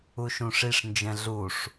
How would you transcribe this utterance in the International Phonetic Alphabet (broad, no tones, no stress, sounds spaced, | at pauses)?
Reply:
u ʃ ũ ʂ i ʂ n d͡ʒ ɛ̃ ɮ u ʂ